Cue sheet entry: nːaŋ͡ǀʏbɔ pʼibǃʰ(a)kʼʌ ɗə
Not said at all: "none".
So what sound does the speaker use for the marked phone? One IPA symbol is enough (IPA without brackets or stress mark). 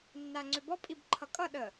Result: ʌ